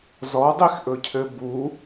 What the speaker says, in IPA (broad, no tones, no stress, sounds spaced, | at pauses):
z ɔ dˤ i x ʔ ɵ cʰ ɘ b u